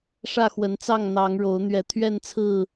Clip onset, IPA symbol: ʂ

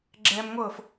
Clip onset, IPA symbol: ɡ͡ǁ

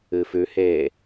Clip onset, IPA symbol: ɨ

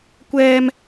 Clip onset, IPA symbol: kʷ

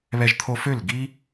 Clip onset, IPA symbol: β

